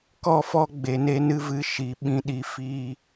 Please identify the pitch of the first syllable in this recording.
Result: falling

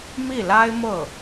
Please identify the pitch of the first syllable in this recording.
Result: falling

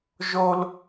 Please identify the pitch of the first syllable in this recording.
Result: high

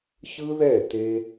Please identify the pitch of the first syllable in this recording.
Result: high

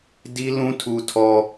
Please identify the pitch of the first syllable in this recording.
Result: high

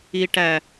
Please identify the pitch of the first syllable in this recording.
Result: low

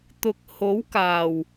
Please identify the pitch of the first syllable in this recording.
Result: low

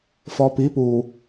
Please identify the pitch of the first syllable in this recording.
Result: low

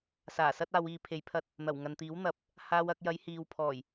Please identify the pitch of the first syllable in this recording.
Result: low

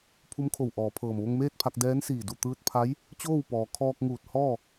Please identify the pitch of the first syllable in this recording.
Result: rising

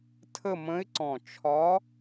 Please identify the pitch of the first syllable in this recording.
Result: falling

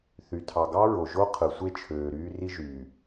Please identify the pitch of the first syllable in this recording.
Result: low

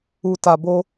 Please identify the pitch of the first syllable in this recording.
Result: low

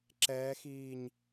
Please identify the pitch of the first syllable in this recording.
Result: rising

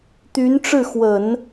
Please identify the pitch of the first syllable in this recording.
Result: rising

